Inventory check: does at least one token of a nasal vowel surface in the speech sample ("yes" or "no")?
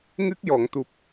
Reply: no